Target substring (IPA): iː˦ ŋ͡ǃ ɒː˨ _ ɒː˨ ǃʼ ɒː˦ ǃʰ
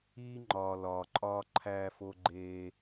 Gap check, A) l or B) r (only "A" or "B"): A